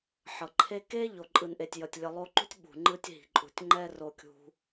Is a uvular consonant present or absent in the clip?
absent